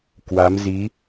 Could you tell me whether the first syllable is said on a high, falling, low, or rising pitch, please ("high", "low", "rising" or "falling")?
rising